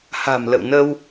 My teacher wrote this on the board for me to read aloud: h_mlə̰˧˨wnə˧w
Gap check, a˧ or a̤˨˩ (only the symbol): a̤˨˩